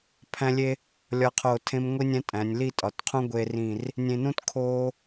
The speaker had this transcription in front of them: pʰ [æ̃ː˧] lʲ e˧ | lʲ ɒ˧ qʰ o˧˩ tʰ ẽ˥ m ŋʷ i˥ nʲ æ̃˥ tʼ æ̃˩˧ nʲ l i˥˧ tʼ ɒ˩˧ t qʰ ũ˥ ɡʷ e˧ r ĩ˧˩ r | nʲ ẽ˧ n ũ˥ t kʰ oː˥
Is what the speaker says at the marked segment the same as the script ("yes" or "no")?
no